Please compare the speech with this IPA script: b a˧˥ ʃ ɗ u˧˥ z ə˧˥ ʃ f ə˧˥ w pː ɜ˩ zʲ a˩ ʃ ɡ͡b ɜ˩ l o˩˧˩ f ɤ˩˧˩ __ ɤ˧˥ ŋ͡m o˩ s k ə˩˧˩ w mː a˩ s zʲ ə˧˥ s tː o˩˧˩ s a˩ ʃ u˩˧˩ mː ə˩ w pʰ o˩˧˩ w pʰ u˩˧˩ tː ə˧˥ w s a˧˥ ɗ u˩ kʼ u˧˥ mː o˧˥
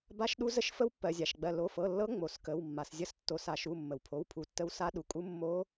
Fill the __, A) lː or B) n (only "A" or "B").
A